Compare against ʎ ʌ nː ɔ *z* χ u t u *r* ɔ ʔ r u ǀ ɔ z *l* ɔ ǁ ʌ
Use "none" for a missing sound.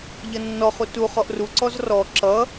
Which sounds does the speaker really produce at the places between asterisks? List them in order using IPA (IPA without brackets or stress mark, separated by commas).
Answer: none, χ, r